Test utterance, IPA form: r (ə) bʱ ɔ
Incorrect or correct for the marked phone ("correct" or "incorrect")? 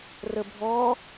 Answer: correct